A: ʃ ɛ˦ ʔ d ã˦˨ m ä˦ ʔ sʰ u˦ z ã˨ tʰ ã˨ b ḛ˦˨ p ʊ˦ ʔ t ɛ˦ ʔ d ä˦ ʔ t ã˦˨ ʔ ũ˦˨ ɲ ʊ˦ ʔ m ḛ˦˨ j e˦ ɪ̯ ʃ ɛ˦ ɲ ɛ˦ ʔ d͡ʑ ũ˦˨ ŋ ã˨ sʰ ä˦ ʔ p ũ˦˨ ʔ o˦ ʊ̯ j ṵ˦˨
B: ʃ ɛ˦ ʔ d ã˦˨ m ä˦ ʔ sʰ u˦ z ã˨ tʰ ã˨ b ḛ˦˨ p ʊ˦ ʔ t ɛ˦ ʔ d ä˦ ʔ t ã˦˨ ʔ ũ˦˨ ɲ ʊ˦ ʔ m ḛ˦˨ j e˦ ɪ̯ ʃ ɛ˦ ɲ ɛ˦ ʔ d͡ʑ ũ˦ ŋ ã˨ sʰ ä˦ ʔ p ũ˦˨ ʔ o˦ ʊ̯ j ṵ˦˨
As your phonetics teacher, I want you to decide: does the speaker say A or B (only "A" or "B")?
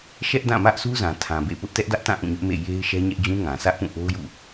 B